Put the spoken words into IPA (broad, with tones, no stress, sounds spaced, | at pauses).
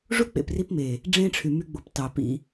ʐ u˦ k͡p ḛ˨ p r i˧ p m e˨ | ɖ͡ʐ ẽ˦ ʈ͡ʂʰ y˨ m y˧ ɡ͡b o˨ p t ɑ˨ p ḭ˦